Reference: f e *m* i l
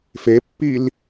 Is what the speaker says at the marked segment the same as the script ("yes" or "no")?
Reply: no